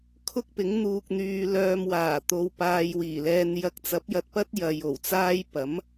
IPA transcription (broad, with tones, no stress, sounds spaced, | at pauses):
kʰ ʊ˥ k̚ p ɪ˨˥ ŋ n̪ uː˧ k̚ n̪ yː˧ l œː˧ m w aː˨˩ t̪ o˨ w p aː˧ j w iː˨˩ l ɛː˧ n j ɐ˧ k̚ t͡s ɐ˨˥ p̚ j ɐ˨ t̚ p ɐ˥ t̚ j ɐ˨˧ j o˨˩ w t͡s aː˥ j p ɐ˨˥ m